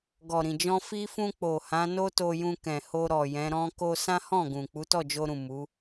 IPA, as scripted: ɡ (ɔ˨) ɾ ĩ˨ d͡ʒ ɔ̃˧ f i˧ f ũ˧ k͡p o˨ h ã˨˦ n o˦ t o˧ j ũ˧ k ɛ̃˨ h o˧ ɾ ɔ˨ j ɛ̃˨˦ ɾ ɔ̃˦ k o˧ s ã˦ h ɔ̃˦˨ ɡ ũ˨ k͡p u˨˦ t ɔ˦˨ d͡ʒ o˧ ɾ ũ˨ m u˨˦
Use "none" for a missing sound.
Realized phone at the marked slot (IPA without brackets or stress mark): ɔ˨